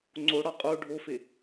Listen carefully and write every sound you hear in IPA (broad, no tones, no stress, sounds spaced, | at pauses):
ŋ͡ǀ o ɽ ɒ qʼ o ɖʱ o f e